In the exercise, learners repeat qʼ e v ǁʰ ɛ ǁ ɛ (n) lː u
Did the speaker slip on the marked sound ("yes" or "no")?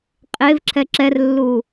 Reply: yes